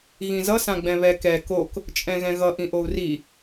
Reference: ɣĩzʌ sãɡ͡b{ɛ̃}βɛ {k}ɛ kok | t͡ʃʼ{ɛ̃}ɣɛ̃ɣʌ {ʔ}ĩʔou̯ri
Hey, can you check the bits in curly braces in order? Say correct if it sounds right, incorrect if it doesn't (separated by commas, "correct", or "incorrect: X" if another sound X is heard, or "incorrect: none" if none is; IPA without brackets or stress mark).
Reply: correct, correct, correct, correct